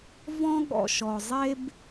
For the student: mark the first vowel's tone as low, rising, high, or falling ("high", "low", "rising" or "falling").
high